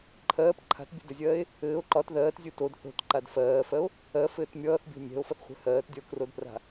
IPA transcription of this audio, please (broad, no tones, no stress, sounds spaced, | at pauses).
ǃʰ ɜː p ǃʰ a̤ t bʲ ə̤ d ɘ zʲ ɜː e̯ | ɘː o̯ ǃ ɒ t ð ɜː t zʲ u t o d θ o̤ t ǃ a d f ɜː f ɜ o̯ | ɜ f ɘː t mʲ ʌː θ bʲ o̤ mʲ ɛ̤ o̯ f ʌ θ χʷ ɛ̤ h ɜː t dʲ ʌ o̯ k r o d p r a̤